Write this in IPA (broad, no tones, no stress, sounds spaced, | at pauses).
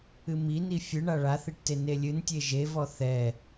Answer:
ɨ m i n i fʲ ɨ ɳ a ɭ a θ i ʈ t e n e lʲ ɨ n tʲ e ʒ e v ɔ θ ɛ